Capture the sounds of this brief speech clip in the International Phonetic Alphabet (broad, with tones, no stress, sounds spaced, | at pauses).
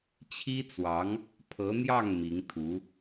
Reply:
t͡ɕʰ i˥ t͡s w ɑ˧˥ ŋ | pʰ ɤ˧˥ n̪ j ɑ˥˩ ŋ m i˧˥ ŋ t̪ʰ u˧˥